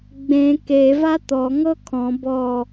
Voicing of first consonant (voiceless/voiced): voiced